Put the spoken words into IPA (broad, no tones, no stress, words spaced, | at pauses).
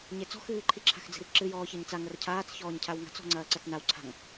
ɲet͡sɔ̤ xɨːǃʰi ǁʰa̤xd͡zi̤rǁɨ jɔːçɐɲt͡sa ŋɐrcʰaːt͡s çɔːɲcʰawŋa̤t͡s ɔ̤ŋ͡ǀɐːǀɐt͡snaw ǀʰa̤ŋ